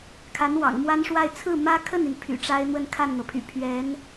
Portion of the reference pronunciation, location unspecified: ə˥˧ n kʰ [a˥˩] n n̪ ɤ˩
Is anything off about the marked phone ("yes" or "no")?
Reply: no